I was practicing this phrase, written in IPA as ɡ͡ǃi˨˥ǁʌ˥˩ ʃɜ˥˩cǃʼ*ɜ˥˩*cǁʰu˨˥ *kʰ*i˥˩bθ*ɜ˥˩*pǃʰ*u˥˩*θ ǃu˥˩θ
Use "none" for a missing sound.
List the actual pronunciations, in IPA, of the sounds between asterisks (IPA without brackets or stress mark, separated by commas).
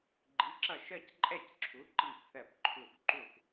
ɛ˥˩, ǃ, ɜ˥˩, u˥˩